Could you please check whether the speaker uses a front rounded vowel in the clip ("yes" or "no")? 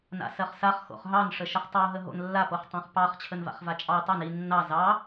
no